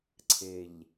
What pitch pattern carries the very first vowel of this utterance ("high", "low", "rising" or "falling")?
low